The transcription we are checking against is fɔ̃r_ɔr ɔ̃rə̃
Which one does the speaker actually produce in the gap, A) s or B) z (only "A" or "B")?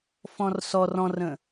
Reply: A